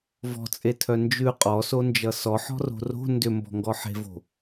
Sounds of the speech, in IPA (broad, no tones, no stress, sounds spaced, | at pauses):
v ɔ̤ t͡sʼ e tʰ œ n d͡ʒ ʉ qʼ ɔ s o n d͡ʒ ʌ s ɔ ħ ɔ̤ r o̤ r o̤ n d ʏ m b ɔ̤ ŋ ɡ ɔ ħ e̤ v o̤